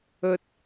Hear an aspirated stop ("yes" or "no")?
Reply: no